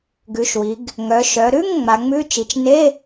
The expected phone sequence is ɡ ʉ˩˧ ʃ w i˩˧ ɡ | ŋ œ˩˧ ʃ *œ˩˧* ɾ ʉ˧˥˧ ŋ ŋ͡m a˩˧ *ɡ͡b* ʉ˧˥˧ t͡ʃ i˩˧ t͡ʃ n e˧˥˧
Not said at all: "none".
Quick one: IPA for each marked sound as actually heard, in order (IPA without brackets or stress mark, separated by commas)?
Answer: œ˩˧, ŋ͡m